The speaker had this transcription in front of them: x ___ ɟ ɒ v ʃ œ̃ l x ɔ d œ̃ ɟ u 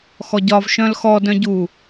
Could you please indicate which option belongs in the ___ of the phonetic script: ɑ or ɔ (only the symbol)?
ɔ